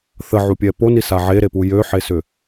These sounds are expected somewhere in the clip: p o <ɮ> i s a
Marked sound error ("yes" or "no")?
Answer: yes